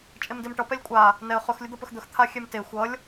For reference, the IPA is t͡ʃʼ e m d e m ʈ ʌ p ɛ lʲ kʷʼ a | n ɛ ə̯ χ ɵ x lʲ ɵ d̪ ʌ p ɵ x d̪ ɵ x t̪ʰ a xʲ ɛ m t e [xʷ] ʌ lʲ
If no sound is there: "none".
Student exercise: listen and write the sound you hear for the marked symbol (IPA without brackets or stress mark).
xʷ